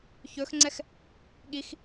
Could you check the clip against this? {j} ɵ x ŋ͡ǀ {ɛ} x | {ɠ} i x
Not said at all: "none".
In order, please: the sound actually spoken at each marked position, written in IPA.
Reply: ç, ɛ, ɠ

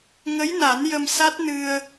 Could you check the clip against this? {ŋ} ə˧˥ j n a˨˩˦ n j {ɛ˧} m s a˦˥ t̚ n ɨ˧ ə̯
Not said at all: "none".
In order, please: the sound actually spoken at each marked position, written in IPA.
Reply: ŋ, ə˧

